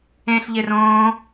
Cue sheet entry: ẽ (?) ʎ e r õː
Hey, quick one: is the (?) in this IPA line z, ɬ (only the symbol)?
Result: ɬ